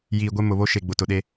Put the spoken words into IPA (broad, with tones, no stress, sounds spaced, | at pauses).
j iː˨ ɡʷ e˦ m ʊ˨ β o˦ ʃ e˨ ɡ͡b ʊ˨ t ʊ˨ ɗ e˦